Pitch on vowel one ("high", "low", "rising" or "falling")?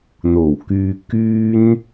low